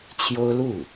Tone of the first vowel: high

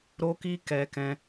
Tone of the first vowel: high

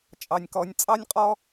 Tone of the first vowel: high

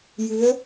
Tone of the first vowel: rising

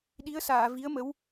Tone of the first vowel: rising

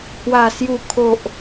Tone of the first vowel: low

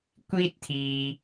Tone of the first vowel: high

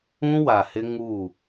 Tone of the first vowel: high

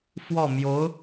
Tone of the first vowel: falling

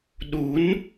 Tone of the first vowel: rising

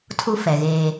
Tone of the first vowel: high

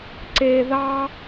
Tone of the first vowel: low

